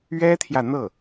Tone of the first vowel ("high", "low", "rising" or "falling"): high